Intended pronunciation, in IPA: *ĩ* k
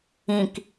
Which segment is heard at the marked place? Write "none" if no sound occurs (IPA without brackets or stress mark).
ĩ